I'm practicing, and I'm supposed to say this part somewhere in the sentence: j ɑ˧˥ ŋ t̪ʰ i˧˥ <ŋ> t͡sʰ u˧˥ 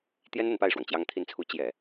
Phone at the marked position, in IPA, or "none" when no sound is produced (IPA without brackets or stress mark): n